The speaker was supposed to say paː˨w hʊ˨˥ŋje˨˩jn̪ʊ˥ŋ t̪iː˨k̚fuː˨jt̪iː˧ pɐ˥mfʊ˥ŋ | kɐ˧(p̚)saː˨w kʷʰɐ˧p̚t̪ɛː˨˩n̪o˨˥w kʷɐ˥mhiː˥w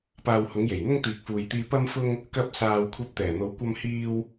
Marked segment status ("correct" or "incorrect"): correct